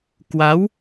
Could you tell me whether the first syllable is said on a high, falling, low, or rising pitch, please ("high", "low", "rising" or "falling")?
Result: rising